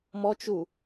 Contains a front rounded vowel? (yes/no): no